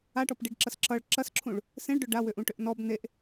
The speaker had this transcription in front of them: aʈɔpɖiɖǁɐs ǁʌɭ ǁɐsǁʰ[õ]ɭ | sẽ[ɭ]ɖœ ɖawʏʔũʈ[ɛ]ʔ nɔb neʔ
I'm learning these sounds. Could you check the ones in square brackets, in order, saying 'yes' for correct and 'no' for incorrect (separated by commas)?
no, yes, no